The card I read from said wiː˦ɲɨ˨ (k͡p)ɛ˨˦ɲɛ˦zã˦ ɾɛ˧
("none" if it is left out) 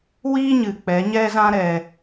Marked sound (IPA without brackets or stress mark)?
k͡p